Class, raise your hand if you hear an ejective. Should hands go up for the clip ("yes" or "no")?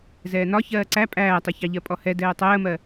yes